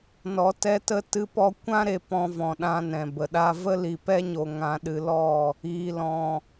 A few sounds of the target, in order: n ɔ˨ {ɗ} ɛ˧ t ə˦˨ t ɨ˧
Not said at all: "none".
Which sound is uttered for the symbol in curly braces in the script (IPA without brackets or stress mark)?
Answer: t